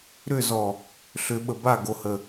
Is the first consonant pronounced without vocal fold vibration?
no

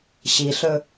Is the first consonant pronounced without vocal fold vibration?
yes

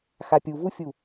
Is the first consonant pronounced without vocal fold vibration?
yes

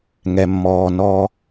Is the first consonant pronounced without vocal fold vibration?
no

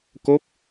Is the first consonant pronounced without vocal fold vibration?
yes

